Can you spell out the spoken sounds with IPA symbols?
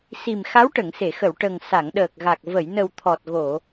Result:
s i˨˩ m x a˧˥ w ʈ ə˨˩˨ ŋ s e˨˩˨ x ə˨˩˨ w ʈ ə˨˩ ŋ s a˨˩˨ ŋ ɗ əː˨˩ k̚ ɣ a˨˩ k̚ v ə˨˩˨ j n ə˨˩ w t̪ʰ ɔ˨˩ t̚ ɣ o˨˩˨

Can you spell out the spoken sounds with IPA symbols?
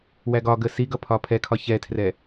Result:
w æ ɡ ɒ ɡ ə s i ɡ ʌ pʰ ɒ pʰ ɛ kʰ ɒ ç ɛ tʰ r ɛ

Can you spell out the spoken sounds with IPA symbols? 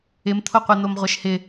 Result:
ɪ m t̪ʰ o qʷ ɛ n̪ o m ʁʷ ɛ ʃ h ɪ

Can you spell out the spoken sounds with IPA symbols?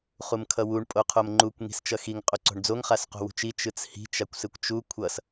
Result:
χ u m kʰ ʌ w u ɳ pʼ o qʰ o m ŋ͡ǃ u kʷ ŋ i̤ s t͡ʃ ʌ x i ŋ qʼ o ǀ o̤ ɳ d͡z o ŋ χ a s q o̤ w ṳ t͡ʃ i t͡ʃ ɯ t͡s h i̤ t͡ʃ a kʷ s ɯ kʷ t͡ʃ u kʷʰ ʌ s

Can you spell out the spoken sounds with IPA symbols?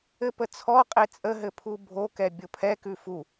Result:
ɘ p ə t͡sʰ ɔ qʼ e t͡sʼ ə ɦ ɘ pʰ u bʱ o k ɛ bʲ o pʰ ɛ k ʉ f u

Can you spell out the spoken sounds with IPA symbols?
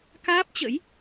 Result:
k aː˦˥ p̚ t͡ɕ ə̰˧˥ j

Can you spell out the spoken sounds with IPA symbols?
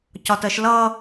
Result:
c ɒ t ɜ ʃ l ʌ

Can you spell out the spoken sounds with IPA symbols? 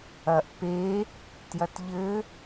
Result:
ɐ ʔ p e | t j ɐ t ʎ ɘ

